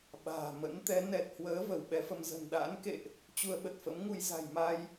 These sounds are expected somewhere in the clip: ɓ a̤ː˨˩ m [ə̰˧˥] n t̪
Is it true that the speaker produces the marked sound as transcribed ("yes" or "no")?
yes